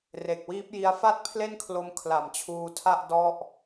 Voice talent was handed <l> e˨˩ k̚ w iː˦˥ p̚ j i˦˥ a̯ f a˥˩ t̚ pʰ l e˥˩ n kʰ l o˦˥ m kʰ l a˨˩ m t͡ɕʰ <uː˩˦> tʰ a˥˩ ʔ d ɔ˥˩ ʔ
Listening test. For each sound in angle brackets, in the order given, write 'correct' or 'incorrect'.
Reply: incorrect: r, incorrect: uː˧

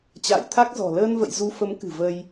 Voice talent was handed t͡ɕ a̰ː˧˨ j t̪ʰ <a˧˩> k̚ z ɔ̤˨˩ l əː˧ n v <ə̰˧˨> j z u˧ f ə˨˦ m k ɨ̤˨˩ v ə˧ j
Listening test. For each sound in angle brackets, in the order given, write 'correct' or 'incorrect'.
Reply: incorrect: a˦˥, correct

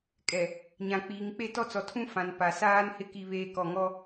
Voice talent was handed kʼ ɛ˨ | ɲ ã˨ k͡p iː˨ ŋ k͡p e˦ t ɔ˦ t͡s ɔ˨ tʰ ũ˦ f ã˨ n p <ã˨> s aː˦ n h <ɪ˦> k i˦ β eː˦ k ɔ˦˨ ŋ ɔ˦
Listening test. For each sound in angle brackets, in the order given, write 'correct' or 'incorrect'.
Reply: incorrect: a˨, correct

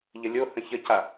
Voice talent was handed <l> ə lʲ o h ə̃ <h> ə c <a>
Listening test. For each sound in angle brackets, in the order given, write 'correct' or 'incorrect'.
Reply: incorrect: ʎ, incorrect: ç, correct

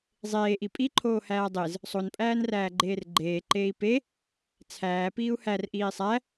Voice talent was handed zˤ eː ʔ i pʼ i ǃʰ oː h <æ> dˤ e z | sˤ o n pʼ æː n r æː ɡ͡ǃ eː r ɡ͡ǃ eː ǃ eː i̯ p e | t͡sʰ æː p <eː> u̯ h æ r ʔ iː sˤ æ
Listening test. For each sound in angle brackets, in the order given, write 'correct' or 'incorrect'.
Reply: incorrect: æː, incorrect: iː

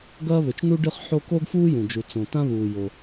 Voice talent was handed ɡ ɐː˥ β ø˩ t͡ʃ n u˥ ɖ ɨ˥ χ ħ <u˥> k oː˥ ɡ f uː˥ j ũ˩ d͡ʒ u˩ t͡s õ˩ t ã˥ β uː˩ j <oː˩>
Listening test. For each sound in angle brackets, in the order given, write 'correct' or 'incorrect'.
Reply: incorrect: o˥, incorrect: o˩

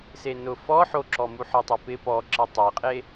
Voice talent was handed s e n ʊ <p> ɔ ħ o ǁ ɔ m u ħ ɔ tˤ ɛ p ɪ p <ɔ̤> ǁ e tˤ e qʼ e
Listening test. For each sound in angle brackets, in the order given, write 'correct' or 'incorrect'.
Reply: incorrect: f, incorrect: ɔ

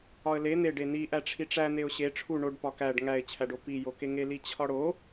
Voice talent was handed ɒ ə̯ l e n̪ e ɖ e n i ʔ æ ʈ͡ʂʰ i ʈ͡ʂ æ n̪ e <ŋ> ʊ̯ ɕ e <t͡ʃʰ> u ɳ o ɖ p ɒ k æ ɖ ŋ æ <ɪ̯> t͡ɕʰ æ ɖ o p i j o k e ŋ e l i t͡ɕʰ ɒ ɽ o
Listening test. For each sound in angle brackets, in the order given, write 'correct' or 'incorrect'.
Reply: incorrect: none, incorrect: ʈ͡ʂʰ, correct

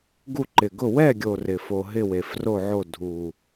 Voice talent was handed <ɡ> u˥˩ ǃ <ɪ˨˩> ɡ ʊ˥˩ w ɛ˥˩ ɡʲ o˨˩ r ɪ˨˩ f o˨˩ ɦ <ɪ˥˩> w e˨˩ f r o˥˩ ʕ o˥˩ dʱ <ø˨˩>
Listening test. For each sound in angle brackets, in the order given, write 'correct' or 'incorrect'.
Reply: correct, correct, correct, incorrect: u˨˩

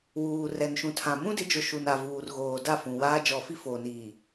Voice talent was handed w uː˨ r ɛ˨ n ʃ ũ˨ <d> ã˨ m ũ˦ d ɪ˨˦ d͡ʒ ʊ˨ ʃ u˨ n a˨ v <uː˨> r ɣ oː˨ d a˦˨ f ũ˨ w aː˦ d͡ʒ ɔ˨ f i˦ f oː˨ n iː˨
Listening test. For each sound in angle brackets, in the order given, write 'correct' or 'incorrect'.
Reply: incorrect: tʰ, correct

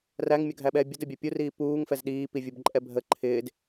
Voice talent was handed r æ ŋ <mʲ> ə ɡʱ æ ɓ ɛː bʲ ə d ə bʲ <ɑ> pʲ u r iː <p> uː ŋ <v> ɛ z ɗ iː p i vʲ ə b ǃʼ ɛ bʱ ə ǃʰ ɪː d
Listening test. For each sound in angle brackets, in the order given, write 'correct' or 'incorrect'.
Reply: correct, correct, correct, incorrect: f

